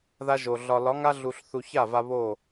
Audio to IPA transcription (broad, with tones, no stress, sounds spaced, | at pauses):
ð a˦ ʒ o˨ ɮ ɒ˨ l ɒ˨˦ ŋ a˦ ɮ u˧ ɬ θ u˧ ç a˦˨ v a˧ β o˦˨